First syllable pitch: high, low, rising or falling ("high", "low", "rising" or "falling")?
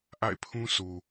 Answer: falling